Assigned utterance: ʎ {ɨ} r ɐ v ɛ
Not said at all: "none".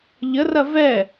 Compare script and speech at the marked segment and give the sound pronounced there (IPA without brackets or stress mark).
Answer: ə